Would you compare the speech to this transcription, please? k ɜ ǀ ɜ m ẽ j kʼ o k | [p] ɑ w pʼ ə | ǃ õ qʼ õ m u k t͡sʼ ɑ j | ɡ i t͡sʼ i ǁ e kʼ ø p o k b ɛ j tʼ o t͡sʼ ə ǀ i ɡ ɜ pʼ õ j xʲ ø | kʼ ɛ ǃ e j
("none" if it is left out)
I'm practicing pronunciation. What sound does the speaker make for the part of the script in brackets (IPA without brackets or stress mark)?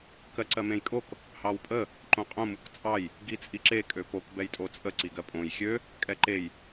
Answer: h